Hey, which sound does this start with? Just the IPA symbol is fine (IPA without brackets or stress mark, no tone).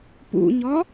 p